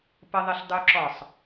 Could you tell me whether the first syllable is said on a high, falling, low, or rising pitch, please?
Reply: high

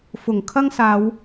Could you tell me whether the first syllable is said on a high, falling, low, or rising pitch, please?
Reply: low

